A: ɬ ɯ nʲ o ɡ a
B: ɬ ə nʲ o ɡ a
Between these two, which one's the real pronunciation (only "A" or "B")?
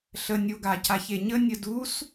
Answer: B